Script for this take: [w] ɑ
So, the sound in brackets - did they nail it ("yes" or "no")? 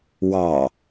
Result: yes